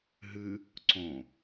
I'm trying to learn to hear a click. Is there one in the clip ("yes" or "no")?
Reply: yes